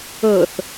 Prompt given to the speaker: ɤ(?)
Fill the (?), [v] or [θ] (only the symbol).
θ